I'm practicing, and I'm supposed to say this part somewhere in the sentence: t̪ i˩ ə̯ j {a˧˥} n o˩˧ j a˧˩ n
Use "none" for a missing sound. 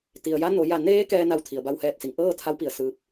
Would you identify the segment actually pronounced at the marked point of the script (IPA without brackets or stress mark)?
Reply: a˧˥